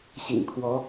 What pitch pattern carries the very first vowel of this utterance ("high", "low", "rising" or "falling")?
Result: low